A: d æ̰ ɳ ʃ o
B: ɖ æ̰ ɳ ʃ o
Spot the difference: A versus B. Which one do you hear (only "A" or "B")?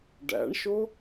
B